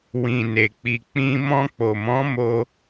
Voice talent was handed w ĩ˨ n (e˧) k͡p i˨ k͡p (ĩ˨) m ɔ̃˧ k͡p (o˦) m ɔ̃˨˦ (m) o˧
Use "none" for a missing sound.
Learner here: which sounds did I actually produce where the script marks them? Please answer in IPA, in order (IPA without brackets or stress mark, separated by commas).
e˨, ĩ˧, o˨, m